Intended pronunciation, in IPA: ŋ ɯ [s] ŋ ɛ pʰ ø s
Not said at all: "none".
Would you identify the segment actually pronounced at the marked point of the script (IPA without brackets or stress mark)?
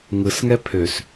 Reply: s